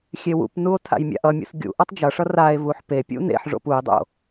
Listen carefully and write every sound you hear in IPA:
xʲ e w ṵ p n u o̯ tʰ a̰ j mʲ a̰ ʔ ʌ mʲ ṵ s ɡʲ ṵ ʔ ʌ tˤ d͡ʒ ʌ ʂ ʌ r a e̯ v u ħ p e pʲ ṵ n ḛ ħ ʐ o̰ p u e̯ dˤ o̰

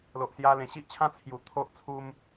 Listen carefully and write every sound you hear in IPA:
l o˨ ʔ s j a˧ l ẽ˨˩ ɕ i˦ ʔ t͡ɕʰ ã˦ t͡sʰ j u˨˩ t̪ʰ o˦ ʔ t͡sʰ u˧ m

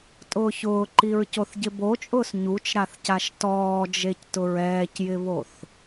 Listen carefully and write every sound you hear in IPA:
tʼ ʊː ç ʊː ǃ i ɹ c o θ ɟ ɪ b o t͡ʃʼ ʊː s ɲ u t͡ʃ ɾ a θ c a ʃ t ɔː d͡ʒ e c t ʊ ɹ ɛː c j ɪ β o θ

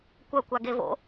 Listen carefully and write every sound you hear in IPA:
kʷ ɐ kʷ a ɡ e v o̰

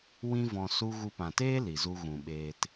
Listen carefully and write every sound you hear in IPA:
w ĩ˦ v ɔ̃˧ s u˧ ɣ u˧ p ã˨ t eː˦ l i˨ z u˧ ɣ ũ˨ ɓ eː˧ t

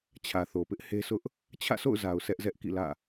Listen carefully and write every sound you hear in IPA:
t͡ɕʰ ä˨ θ o˨ p ɪ˦ ʔ h e˦ s ʊ˦ ʔ | t͡ɕʰ ä̰˦˨ s o̰˦˨ ʊ̯ z a˨ ʊ̯ sʰ ɛ˦ ʔ z ɛ˦ ʔ k ḭ˦˨ l ä̰˦˨

